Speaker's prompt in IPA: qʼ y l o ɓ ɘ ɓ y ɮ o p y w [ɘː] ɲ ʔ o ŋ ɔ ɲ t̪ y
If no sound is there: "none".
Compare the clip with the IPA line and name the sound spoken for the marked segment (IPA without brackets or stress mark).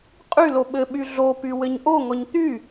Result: ɘ